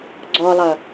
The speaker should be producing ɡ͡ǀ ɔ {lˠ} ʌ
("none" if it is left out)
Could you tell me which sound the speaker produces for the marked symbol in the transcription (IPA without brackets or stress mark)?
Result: lˠ